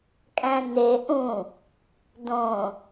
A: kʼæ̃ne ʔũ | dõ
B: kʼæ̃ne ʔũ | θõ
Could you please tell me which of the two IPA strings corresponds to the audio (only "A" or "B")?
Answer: A